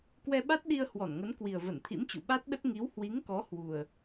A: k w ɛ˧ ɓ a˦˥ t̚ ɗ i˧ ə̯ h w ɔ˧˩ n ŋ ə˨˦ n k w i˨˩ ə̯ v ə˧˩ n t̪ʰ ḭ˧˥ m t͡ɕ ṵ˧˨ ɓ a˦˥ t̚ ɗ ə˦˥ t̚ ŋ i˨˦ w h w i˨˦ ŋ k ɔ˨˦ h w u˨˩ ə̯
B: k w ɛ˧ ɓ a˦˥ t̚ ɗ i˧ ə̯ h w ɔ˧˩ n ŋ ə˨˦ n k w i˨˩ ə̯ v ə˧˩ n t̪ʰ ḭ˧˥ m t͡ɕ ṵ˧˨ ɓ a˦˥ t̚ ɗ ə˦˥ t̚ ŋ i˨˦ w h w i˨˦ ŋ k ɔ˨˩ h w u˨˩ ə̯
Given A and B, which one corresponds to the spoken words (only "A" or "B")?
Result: A